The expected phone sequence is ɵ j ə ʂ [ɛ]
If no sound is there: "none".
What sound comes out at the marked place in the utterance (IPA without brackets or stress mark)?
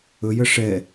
ɛ